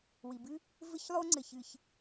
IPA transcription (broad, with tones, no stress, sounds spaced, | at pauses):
w i˩ b ɨ˥ | v ɘ˥ ç lˠ o˥ ŋ͡ǀ ɘ˩ ç ɨ˩ ç